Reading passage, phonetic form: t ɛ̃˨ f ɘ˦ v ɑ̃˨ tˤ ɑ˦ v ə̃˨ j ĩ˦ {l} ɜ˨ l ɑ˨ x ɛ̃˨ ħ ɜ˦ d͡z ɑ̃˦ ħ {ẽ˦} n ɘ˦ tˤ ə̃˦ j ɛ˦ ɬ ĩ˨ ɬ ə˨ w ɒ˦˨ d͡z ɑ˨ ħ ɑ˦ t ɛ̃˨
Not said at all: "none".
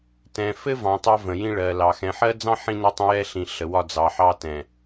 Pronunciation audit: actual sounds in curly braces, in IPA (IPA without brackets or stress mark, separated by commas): ɭ, ĩ˦